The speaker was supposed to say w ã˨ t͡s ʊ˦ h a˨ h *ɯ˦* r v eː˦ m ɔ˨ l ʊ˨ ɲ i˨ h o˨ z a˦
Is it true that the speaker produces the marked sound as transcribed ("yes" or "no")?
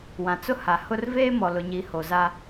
no